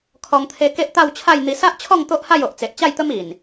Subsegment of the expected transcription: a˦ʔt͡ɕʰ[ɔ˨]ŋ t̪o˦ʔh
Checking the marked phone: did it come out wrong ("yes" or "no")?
yes